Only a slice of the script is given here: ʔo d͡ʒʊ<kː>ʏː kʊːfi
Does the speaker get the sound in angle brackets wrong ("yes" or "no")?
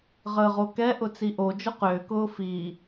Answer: yes